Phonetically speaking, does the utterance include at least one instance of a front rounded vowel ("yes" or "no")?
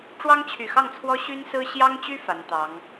yes